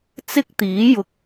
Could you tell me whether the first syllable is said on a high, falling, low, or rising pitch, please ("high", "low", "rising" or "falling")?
high